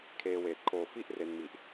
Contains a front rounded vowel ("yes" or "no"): no